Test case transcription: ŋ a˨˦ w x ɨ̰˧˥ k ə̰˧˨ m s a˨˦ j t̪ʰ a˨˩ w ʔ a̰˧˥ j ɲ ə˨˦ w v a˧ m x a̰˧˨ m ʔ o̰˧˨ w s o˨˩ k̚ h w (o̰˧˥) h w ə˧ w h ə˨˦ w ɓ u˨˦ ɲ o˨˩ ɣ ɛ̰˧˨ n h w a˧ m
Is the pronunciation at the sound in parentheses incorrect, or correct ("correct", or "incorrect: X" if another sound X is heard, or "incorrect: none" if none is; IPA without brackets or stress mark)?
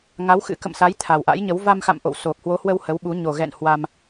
incorrect: o˨˦